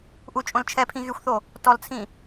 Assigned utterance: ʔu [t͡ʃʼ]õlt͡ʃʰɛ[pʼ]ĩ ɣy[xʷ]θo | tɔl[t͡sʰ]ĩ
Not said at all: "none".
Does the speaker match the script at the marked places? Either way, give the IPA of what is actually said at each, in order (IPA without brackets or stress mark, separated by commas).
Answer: t͡ʃʼ, pʰ, xʷ, t͡sʰ